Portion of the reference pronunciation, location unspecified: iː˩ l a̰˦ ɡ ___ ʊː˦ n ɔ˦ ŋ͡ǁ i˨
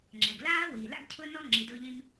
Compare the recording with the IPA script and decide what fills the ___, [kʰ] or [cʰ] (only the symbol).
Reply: cʰ